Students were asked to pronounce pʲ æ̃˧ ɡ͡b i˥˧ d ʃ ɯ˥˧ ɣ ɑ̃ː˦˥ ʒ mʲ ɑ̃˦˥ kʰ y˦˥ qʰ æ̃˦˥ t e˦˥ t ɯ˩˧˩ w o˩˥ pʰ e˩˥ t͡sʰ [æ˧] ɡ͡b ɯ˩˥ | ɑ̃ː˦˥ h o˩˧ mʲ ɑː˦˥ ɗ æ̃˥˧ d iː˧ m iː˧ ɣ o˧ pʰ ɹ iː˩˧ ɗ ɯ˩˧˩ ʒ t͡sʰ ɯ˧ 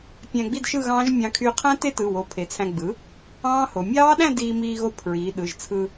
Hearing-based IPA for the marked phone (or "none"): æ̃˧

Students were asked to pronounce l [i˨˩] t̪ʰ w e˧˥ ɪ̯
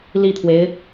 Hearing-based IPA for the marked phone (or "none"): i˥˩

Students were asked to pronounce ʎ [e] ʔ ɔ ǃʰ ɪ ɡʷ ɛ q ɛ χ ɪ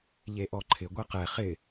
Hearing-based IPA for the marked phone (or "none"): e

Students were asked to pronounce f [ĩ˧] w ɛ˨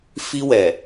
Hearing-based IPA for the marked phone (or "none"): i˧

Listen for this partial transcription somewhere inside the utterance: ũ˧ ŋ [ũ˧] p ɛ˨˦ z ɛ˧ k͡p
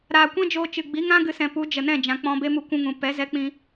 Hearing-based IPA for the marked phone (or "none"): ũ˨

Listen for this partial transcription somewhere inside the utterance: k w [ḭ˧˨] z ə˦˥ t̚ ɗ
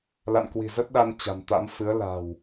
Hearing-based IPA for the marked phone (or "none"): i̤˨˩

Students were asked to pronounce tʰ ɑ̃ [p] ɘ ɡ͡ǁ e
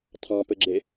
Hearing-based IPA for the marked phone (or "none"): p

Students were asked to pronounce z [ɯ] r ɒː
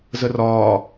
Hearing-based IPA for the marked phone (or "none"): ə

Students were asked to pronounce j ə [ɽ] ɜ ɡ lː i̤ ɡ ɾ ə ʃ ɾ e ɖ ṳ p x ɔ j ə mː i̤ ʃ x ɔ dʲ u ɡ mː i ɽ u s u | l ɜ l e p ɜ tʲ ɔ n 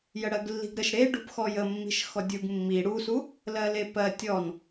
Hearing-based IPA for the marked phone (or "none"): ɽ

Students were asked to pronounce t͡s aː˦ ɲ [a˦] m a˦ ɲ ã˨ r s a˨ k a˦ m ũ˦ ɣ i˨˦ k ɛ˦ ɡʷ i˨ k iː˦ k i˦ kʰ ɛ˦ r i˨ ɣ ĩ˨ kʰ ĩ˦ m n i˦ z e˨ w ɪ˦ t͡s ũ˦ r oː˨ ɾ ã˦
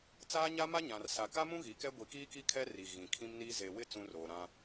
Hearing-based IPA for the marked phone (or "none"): a˦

